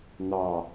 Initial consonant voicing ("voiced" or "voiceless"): voiced